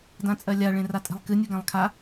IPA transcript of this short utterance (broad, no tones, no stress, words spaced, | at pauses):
dãt͡sʼɜlʲa ɭẽratʼe̤lˠkɨ nʲɯɡãlˠkʰa